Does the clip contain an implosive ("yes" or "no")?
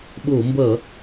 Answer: yes